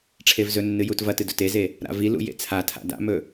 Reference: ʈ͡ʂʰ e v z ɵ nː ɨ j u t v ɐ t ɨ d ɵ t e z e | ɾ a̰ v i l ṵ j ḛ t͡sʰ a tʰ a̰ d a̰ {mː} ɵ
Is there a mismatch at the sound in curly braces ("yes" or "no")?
yes